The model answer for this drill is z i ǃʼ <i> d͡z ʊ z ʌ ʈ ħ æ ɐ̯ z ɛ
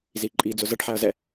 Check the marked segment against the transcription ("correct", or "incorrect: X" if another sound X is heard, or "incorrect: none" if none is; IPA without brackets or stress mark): correct